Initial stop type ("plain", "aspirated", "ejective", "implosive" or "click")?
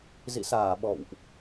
implosive